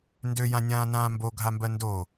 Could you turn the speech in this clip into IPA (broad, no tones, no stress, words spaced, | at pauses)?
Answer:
ndøjãnʲãː nãːmbo ɡʱambɜndo